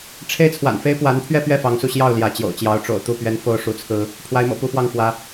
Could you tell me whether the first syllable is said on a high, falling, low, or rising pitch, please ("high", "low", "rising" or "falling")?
high